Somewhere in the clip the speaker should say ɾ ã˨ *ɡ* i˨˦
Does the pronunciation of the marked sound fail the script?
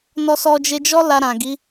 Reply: no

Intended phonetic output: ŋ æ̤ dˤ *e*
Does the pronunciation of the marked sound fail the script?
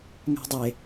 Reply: no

